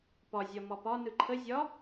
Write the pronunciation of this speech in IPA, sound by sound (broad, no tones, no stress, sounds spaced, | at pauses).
p ɒ zʲ ɒ m ɒ p ɒ n ɯ ǃʰ ə zʲ ɒ